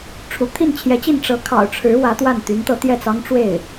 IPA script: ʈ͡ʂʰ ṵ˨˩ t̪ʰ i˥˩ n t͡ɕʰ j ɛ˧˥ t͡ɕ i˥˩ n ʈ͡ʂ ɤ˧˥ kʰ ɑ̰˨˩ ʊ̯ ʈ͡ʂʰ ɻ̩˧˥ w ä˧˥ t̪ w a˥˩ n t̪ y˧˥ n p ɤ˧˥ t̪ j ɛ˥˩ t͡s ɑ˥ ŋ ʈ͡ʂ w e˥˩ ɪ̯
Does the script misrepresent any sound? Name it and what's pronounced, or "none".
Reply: p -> t̪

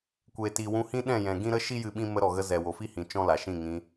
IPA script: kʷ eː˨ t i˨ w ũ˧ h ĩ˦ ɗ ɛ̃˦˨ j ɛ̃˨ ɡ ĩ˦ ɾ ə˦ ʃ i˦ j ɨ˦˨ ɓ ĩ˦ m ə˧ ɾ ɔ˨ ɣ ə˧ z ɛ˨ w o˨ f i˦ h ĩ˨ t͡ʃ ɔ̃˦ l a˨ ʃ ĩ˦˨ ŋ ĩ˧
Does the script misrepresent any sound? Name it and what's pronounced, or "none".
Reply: none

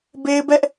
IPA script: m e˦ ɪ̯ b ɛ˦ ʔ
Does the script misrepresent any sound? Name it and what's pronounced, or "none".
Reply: m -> b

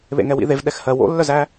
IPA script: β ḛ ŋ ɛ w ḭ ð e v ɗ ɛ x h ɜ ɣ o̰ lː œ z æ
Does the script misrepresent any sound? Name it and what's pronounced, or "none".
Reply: ɣ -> w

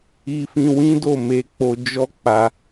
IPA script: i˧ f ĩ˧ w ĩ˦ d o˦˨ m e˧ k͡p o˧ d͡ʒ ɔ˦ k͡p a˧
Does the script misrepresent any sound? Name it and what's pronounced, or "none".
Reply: none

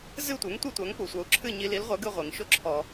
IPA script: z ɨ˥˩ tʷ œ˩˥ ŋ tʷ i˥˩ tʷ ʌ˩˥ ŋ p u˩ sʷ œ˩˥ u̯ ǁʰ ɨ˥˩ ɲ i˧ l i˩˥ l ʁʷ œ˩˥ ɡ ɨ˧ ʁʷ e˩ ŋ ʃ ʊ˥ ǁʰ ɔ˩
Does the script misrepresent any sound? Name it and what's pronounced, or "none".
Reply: ʌ˩˥ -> a˩˥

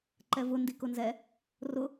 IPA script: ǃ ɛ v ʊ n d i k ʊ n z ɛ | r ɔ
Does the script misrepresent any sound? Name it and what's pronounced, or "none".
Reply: ɔ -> ʊ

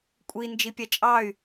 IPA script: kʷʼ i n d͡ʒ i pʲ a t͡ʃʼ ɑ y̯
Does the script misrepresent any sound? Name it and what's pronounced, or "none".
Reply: none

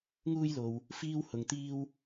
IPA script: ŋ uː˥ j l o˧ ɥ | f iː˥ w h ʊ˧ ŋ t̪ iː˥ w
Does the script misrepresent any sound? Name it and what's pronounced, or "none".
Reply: ɥ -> w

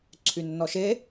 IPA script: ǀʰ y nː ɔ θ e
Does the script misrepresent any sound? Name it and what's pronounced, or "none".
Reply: θ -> ʃ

